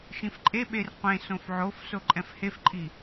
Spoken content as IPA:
ʃ ĩ f ǃʼ e ɓ e r qʷ ẽ s õ f ʕ o f s o ǃʼ ɛ̃ f h e f ǃʼ i

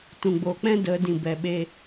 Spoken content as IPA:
t ũ˨ ɡ͡b oː˨ k͡p ɛ̃˦ d ə˨˦ d ĩ˨ b ɛ˨ ɓ e˧

